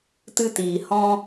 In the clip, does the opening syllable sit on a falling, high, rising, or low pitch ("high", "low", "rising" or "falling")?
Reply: high